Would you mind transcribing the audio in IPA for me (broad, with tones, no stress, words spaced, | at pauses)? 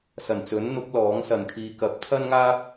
sɐ˨˩nt͡sɵ˨˥nn̪ʊ˨˥k̚ lɔː˨˥ŋ sɐ˨nkʰiː˧ kɐ˨˥p̚t̪ʰɐ˥nŋaː˥p̚